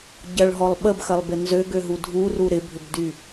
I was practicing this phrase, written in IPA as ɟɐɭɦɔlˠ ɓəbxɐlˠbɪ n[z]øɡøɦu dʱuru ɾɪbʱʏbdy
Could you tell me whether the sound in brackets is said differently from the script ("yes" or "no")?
no